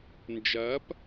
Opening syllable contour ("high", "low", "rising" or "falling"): rising